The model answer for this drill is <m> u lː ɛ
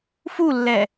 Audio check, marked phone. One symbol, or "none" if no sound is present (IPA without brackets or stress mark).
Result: f